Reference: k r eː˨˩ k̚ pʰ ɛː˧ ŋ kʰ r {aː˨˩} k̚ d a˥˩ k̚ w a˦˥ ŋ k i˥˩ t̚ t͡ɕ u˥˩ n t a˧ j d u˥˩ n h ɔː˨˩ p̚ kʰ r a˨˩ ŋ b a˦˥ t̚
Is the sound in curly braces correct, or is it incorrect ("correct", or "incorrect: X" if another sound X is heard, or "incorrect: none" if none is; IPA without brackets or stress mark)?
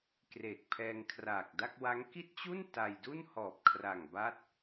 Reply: correct